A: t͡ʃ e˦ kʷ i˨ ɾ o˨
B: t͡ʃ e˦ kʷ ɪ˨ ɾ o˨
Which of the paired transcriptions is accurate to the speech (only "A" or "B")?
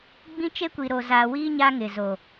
A